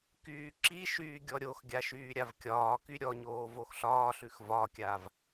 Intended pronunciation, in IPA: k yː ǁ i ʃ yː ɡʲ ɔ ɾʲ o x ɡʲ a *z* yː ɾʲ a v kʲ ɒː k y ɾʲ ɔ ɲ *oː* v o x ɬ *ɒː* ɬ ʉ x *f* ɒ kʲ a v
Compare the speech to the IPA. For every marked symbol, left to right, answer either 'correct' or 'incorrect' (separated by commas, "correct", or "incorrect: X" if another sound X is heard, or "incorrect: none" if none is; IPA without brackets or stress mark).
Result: incorrect: ʃ, correct, correct, incorrect: v